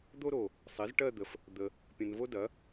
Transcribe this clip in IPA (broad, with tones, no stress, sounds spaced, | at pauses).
d̪ o˥ ɾ o˨ | sˤ i˩˥ z ʈ ɜ˥˧ d̪ ə˨ f | d̪ ə˨ | pʲ ə̃˨ n v o˥ d ɐ˩˥